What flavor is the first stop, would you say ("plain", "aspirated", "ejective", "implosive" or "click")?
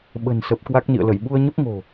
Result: implosive